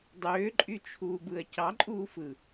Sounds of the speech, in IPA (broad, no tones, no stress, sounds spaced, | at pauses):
dˤ øː ǃʼ y t͡ʃʰ uː b ɯ ɐ̯ c ɑ ǃʼ uː f ɯ